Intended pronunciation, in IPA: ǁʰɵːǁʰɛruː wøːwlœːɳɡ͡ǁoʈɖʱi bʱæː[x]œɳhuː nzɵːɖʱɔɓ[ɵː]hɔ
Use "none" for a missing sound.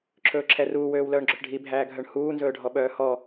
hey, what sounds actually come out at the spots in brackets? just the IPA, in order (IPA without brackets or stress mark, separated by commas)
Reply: ɡʱ, œː